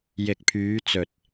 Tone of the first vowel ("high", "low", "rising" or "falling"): low